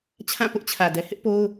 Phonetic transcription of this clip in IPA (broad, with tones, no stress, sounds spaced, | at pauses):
t͡ɕʰ ã˦˨ p ʊ˦ ʔ t͡ɕʰ ä˨ d ɛ˨ h ɪ˦ ʔ p o˦ ʊ̯